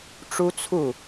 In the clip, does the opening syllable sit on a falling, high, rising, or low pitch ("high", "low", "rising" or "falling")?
high